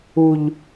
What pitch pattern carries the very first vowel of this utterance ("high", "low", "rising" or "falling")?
low